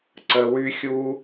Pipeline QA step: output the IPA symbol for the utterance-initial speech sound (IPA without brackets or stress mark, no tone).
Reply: ǀ